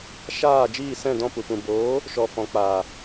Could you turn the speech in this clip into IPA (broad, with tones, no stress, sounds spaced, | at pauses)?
ʃ aː˦˨ d͡ʒ iː˦˨ s ɛ̃˦˨ d ɔ̃˦˨ p u˨ p ũ˨ b oː˨˦ | ʃ ɔ˨ f ɔ̃˨ k͡p aː˨